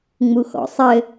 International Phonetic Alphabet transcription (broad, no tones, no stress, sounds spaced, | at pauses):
ŋ͡m u x ɔ̰ sˤ ɘ